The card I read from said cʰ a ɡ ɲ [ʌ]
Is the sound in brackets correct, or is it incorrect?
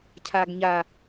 incorrect